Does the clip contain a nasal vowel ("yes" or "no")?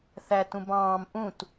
yes